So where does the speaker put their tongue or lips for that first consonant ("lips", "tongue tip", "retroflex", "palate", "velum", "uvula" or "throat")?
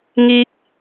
velum